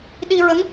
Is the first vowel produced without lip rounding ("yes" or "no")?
yes